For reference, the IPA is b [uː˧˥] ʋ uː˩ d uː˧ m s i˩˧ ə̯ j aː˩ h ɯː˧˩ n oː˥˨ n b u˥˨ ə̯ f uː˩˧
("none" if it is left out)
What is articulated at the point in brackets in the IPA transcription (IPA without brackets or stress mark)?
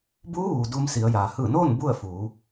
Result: uː˧˥